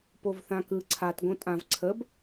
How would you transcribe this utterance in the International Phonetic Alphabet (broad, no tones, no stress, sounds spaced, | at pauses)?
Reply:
p o v θ ã k ɯ ǀʰ a t ɡ õ tʼ ã v ǀʰ ə b